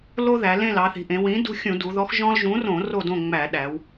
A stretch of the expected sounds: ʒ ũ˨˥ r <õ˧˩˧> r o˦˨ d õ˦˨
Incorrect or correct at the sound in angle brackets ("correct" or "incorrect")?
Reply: correct